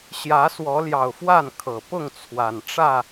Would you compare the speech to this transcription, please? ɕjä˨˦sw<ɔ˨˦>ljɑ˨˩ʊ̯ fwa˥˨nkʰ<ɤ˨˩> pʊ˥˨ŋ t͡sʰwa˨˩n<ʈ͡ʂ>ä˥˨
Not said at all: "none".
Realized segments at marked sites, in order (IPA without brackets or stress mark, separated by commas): ɔ˨˦, ɤ˨˩, ʈ͡ʂ